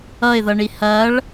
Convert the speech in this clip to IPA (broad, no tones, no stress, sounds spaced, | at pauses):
ʌ ɪ̯ ð ʌ ɳ i h ɐ ɭ